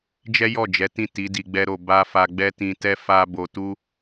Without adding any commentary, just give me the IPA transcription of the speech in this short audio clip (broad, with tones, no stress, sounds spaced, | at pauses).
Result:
d͡ʒ ɛ˦ j ɔ˦˨ d͡ʒ ɛ˨˦ t ĩ˦˨ t i˨˦ d i˧ ɡ͡b ɛ˦ ɾ o˧ b a˦ f a˧ ɡ͡b ɛ˦ t ĩ˧ t ɛ˦ f a˦ b o˧ t u˦